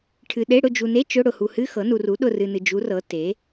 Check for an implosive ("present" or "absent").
present